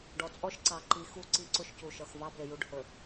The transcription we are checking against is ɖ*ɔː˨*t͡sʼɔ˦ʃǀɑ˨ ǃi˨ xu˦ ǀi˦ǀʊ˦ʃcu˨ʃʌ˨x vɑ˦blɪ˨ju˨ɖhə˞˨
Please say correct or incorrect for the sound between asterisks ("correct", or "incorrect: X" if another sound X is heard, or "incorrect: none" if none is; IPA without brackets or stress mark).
incorrect: ɔ˨